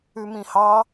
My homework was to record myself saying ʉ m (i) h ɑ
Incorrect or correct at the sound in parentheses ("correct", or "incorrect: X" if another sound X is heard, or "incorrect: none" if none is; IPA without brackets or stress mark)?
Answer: incorrect: ĩ